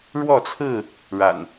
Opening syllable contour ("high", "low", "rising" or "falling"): falling